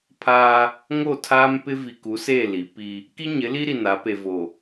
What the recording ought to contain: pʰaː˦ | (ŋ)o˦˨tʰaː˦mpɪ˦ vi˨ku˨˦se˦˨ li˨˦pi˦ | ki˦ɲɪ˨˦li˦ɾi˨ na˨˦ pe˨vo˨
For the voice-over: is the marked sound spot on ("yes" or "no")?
yes